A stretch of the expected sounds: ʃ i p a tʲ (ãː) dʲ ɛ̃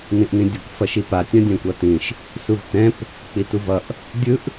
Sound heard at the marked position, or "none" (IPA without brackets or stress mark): ã